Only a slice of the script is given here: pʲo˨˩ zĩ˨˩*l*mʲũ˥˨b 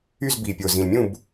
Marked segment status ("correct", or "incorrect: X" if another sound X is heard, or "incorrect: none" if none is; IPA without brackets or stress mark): correct